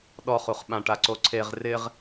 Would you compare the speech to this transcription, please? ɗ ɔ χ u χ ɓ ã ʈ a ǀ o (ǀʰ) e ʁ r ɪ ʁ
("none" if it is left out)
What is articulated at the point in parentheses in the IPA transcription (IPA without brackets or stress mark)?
ǀʰ